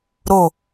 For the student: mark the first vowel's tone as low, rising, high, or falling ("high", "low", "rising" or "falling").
falling